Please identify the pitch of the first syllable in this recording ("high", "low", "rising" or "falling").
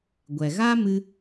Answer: low